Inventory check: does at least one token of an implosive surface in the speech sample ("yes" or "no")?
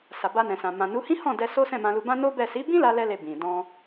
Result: no